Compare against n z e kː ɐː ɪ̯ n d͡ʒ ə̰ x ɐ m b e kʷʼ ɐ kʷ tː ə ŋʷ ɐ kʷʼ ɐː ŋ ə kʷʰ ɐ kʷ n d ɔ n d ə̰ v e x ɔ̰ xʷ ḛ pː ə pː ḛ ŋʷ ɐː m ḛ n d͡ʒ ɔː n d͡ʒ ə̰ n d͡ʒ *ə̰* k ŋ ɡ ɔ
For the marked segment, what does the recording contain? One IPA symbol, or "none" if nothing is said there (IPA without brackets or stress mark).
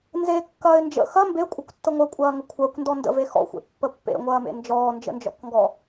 ɔ̰